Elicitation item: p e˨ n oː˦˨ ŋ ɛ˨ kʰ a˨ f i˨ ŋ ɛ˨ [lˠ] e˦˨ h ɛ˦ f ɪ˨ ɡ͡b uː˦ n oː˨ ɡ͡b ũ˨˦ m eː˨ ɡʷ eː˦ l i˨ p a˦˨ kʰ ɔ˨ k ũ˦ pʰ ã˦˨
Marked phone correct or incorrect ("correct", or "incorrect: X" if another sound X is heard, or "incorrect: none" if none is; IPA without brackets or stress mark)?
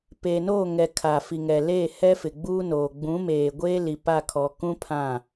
incorrect: l